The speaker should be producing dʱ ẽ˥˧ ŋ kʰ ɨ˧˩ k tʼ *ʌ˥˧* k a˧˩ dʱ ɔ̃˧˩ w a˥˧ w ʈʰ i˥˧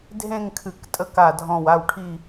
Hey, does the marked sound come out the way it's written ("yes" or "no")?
no